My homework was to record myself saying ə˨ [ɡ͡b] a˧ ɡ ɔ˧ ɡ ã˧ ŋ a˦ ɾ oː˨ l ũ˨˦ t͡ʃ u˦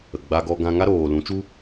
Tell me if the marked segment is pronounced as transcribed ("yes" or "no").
yes